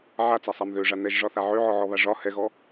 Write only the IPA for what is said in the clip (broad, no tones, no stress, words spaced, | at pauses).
ʕat͡sasˤam ðøʐa nɛʒʐɒθa ʕøʕɔʕɔβa ʐɒ hɛɣɔ